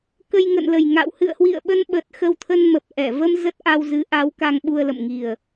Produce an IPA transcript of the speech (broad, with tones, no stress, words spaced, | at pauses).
kə˧j ŋə̰˧˨nlə˨˩jŋa̰˧˨w hɨ̰˧˨ə̯hwḭ˧˨ə̯ɓə˧nɓə˨˩t̚ xə˧wt̪ʰə˧nmə˨˩p̚ ʔɛ˧˩ və˧m zə˦˥t̚ʔa˧wzɨ˨˦ ʔa˨˦w ka˧ŋɓu˧ə̯lə̰˧˨m ŋi˨˩ə̯